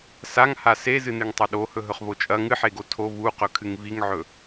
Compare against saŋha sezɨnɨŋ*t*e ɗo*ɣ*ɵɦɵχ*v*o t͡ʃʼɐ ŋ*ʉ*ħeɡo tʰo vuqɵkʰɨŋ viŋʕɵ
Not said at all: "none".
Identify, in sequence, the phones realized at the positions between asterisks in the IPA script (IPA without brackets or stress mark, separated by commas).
tˤ, h, v, ɨ